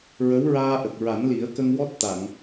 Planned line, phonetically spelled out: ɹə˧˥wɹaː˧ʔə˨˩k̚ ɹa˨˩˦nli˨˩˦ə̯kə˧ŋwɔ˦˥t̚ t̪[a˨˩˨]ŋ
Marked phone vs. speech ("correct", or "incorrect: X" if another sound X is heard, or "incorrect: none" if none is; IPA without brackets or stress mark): correct